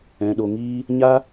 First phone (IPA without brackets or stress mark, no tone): ɛ̃